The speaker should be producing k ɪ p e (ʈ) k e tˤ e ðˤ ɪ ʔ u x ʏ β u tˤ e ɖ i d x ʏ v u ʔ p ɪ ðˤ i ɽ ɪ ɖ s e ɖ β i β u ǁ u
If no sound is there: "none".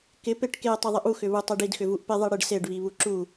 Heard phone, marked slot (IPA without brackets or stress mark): ʈ